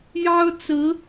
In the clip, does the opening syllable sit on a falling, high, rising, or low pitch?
high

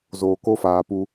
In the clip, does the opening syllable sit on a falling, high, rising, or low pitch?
low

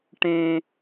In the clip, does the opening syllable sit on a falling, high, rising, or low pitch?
high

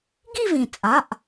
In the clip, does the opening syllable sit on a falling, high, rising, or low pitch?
falling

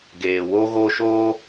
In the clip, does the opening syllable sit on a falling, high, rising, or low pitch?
low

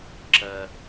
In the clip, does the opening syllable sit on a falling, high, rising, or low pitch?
high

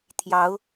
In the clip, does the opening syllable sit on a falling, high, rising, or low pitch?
rising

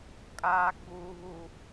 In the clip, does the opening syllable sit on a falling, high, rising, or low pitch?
high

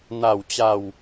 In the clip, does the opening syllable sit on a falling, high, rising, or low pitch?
falling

